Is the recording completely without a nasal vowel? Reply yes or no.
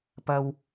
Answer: yes